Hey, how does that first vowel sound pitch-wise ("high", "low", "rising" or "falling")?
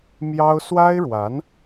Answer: high